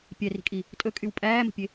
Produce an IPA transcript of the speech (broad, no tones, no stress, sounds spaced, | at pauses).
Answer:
pʲ ɛ r i̤ kʼ i | tʼ ɵ kʼ y w pʼ æː m ə̤ pʲ e